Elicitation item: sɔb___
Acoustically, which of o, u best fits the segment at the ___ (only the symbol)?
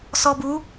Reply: u